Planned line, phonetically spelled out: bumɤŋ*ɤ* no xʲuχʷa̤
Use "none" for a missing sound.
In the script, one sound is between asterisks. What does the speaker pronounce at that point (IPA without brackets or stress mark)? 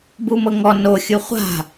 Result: ɔ